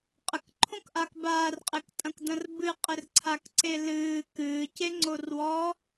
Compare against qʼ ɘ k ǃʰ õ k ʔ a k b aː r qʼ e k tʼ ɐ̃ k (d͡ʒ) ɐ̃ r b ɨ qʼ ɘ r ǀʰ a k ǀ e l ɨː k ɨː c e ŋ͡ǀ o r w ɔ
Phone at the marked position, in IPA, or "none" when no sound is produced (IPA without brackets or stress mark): d